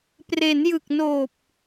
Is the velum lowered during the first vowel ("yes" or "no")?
no